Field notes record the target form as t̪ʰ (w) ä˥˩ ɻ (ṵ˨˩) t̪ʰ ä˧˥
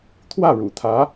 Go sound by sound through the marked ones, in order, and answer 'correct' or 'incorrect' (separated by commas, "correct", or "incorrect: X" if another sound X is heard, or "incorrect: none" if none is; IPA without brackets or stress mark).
correct, correct